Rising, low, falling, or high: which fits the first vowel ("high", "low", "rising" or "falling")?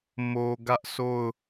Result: low